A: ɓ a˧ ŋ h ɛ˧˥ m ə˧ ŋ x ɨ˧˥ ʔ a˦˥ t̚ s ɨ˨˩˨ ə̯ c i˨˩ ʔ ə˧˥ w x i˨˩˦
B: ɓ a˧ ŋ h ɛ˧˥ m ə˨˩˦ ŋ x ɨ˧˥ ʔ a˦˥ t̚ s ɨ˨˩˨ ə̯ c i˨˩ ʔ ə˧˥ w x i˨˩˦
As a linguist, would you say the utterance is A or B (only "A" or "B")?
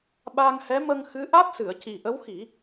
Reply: A